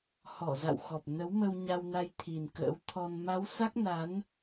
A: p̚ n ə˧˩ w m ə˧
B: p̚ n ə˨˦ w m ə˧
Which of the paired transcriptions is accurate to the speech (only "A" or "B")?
B